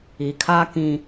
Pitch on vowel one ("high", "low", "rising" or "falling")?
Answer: low